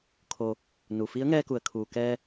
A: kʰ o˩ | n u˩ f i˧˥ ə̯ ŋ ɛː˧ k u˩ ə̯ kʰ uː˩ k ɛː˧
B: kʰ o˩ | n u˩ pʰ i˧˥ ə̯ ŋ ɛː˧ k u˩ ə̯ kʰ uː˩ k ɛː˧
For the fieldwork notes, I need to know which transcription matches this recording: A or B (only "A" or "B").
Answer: A